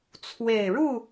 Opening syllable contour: low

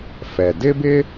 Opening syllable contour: low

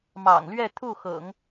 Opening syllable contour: low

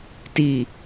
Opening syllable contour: low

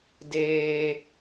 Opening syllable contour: high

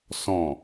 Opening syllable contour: low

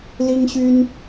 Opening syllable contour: high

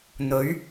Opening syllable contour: rising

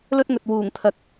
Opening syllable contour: high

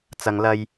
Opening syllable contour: low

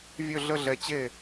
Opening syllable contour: falling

